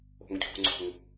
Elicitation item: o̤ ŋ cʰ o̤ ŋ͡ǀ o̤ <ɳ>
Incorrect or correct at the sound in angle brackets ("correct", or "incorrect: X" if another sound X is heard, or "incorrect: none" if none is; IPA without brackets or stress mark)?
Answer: incorrect: ŋ